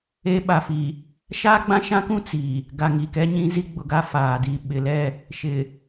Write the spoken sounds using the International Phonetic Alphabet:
e˦ ɓ a˨ f i˨ | ʃ aː˦ ɡ͡b ã˦ ʃ ã˦ k ũ˦ t͡s i˨ | ɡ a˨ ŋ i˨ k ɛ˦ ɲ ĩ˦ z i˦ ɡ͡b ʊ˨ ɡ a˦ f aː˨ d i˦˨ ɓ ɪ˨ l ɛ˦˨ | ʃ ɪ˨

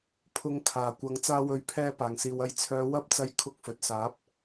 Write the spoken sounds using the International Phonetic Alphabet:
pʰ ʊ˨˧ ŋ kʰ aː˨˩ kʷ ɐ˨˧ ŋ t͡s aː˧ w ɵ˨˥ ɥ pʰ ɛː˧ p aː˨˩ ŋ s iː˨ w ɐ˨˥ j t͡sʰ œː˨˧ w ɐ˨˥ p̚ t͡s ɐ˨˧ j kʰ ʊ˧ k̚ f ɵ˨ t̚ s aː˨˥ p̚

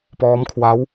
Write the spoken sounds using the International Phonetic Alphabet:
p ɔː˦˥ m kʰ w a˦˥ w

